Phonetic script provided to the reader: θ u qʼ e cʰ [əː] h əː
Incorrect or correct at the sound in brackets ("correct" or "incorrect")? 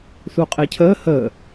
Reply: correct